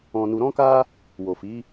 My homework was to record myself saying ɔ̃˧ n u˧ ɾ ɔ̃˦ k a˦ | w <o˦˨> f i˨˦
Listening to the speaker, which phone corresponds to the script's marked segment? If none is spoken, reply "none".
o˨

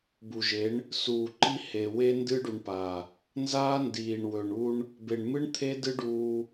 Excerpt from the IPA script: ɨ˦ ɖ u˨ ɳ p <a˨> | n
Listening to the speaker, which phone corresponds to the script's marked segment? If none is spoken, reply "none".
a˨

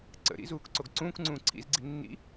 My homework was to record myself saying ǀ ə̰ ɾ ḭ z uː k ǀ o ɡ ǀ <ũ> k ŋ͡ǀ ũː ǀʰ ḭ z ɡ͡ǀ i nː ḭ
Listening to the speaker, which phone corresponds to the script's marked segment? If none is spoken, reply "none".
ũː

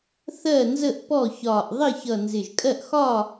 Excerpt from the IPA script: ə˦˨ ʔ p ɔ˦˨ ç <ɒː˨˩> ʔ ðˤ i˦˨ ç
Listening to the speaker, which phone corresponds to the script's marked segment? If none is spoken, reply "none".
ɒː˨˩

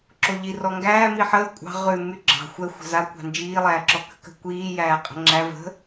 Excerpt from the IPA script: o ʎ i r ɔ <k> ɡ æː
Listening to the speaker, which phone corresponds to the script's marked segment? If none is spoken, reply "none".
ŋ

